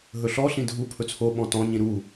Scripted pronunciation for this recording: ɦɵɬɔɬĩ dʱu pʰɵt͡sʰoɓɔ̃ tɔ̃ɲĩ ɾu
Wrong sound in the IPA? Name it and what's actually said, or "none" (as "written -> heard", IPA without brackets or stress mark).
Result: none